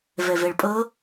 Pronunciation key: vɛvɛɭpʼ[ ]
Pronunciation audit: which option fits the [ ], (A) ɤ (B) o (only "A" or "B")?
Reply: A